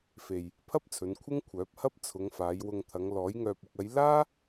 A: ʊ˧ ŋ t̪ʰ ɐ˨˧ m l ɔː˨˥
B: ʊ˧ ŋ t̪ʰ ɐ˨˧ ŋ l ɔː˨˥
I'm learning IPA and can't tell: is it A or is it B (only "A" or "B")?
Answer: B